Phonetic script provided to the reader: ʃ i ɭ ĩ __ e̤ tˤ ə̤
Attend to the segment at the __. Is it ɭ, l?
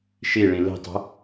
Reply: l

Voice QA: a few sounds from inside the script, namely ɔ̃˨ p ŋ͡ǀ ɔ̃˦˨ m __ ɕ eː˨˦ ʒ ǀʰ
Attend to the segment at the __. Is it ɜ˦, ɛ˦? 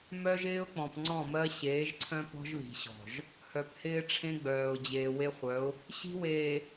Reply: ɜ˦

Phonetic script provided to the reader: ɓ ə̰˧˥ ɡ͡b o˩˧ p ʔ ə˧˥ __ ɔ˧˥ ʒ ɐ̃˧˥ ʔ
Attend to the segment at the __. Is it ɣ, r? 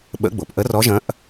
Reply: r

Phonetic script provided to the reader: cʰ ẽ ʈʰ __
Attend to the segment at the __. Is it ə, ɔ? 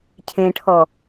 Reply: ɔ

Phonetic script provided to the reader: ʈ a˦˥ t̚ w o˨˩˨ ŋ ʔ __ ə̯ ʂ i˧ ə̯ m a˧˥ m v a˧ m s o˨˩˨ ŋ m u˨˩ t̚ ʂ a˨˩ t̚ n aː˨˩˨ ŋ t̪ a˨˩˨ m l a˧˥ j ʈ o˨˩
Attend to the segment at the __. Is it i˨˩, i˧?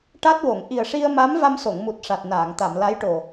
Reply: i˨˩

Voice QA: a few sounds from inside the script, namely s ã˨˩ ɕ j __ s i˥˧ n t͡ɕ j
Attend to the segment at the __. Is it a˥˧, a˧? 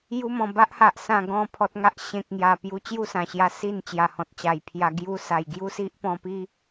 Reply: a˧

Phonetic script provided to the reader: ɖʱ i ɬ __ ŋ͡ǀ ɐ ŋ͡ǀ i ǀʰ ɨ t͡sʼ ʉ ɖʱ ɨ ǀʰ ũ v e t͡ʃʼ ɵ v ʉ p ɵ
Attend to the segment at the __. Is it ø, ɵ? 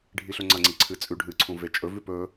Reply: ɵ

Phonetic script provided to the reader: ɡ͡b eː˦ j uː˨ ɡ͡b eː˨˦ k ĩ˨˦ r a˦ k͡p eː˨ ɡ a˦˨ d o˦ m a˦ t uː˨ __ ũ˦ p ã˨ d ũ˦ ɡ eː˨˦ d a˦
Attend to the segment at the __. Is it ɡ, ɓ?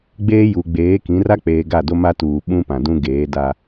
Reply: ɓ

